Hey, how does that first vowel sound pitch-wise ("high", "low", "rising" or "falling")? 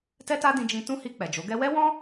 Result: high